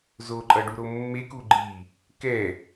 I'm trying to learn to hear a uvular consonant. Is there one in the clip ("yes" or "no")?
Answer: no